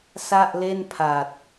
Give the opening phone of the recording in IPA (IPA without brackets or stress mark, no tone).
s